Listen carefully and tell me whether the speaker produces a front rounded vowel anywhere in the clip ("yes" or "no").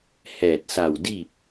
no